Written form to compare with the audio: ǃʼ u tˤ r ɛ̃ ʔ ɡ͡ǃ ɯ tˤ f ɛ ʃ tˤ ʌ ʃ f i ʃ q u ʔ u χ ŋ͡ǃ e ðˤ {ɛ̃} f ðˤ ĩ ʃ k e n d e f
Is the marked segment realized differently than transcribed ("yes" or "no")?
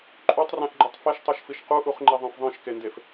no